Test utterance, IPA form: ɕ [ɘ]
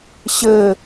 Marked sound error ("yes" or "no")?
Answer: no